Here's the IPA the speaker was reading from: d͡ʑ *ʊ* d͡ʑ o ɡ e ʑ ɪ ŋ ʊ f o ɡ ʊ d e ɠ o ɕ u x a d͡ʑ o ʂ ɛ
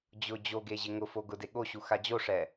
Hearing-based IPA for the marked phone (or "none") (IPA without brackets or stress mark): ʊ